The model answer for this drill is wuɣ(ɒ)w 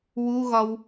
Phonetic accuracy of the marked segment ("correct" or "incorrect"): correct